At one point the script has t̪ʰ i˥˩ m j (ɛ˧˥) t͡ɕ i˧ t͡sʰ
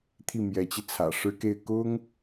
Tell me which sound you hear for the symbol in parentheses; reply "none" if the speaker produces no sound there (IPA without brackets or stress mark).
ɛ˧˥